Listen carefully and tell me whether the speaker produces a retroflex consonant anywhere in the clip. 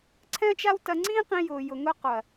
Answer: no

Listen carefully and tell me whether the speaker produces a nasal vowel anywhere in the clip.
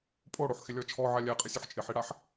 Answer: no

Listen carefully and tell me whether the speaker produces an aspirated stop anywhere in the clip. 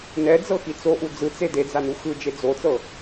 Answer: no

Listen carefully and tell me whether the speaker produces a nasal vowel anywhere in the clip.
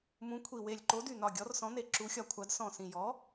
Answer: yes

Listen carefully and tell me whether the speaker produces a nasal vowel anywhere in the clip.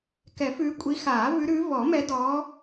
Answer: no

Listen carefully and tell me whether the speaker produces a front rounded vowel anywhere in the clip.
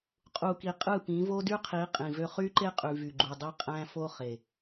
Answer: yes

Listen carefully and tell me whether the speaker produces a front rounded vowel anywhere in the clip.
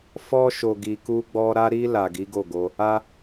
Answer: no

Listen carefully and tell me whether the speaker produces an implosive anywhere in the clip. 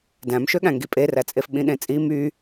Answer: yes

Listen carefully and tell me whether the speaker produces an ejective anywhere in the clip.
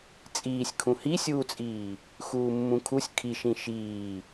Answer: yes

